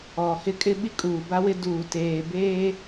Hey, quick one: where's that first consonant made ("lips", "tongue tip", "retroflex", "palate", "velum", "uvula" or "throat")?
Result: throat